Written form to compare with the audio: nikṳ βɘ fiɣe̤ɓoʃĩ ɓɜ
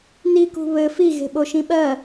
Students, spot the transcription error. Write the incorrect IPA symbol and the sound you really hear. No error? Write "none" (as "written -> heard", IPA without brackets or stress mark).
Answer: none